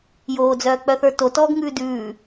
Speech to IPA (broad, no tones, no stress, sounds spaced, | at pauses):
j oː d͡z œː k͡p œ θ ə˞ t o t ɔː ɡ ŋ ʉː d ʉː